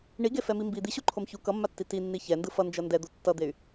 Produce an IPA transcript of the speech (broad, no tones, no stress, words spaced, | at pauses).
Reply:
ɳiɡefɛmi mbi d̪iɕuǃʰom çu kʌmːatːi tinːi çɛndɯ fʌnd͡ʒʌ ndɛd̪o tːʌd̪ey̯